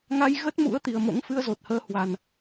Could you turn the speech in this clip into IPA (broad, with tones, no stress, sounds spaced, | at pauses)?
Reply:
ŋ a˧ j ɣ ə˦˥ t̚ m ṵ˧˥ ə̯ t̪ i˨˩ ə̯ m o̰˧˥ ŋ f ɨ˧ ə̯ z o˨˩ t̚ h əː˧ h w a˨˩ n